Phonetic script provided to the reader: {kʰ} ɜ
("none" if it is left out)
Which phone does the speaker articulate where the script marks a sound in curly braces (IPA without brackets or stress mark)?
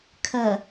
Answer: kʰ